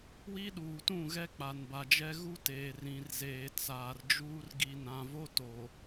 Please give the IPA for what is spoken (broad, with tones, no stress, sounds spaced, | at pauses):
w i˦ ɗ uː˨ t ũ˦˨ ɣ ɛ˦ k͡p a˨ n b a˨ d͡ʒ ɛ˦ ɣ u˦ t eː˨ r ĩ˨ r z eː˨ t͡s aː˨ r d͡ʒ uː˦ r ɡ i˨ n ã˨ v o˦ t o˨